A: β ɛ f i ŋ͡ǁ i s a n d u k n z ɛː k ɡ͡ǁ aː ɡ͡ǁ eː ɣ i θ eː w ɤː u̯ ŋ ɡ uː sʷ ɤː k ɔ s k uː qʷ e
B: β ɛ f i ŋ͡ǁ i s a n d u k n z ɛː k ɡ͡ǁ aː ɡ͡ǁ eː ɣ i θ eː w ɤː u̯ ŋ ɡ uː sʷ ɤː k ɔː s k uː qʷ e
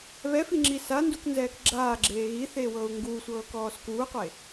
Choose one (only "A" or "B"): B